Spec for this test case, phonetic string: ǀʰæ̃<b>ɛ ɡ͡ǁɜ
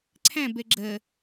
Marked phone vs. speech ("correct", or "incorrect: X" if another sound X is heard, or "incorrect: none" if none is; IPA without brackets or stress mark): correct